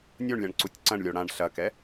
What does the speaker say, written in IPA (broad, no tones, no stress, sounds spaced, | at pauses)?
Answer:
nʲ o ɳ lʲ ã ɳ ǀ u tʲ ǀ ɐ̃ ɳ lʲ o ɽ ã ɳ ɬ ɐ k ɛ